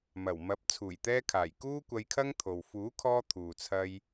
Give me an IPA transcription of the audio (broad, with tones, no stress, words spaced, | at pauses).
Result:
mɐ˨˩w mɐ˨˥p̚ t͡sʰuː˨˩jt̪ɛː˧kʰaː˨˩j kuː˥kʷɐ˧jkʰɐ˥ŋt̪ʰo˨w fuː˨˥kʰɔː˧ t̪ʰuː˨t͡sʰɐ˧j